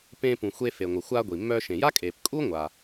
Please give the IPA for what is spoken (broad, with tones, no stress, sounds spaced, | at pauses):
p ẽː˧ p ũ˩ xʷ e˧ f e˩ ŋʷ ə˩ xʷ aː˧ ɡʷ i˩ mː œː˧ ʃ ẽ˩ j a˥ kʼ eː˩ p kʼ u˥ ŋʷ a˩